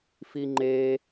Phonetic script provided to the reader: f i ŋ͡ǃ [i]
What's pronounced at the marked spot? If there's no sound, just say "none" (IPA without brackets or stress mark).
e